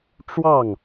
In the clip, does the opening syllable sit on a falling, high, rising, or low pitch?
falling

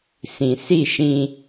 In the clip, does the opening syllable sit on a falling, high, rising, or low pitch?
low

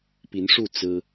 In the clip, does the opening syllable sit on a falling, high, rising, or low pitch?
rising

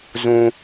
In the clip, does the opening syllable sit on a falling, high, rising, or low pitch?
low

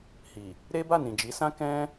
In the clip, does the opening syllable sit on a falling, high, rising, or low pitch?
low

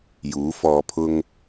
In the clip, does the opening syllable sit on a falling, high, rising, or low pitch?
rising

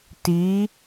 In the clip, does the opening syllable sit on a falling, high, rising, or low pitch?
rising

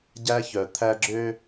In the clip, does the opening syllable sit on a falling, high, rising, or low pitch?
high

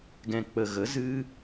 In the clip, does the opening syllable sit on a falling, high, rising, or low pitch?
low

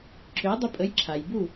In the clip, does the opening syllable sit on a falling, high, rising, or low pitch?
rising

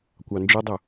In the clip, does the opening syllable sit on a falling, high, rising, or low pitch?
low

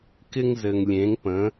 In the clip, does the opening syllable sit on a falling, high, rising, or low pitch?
high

